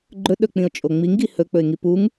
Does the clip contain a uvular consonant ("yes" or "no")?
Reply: no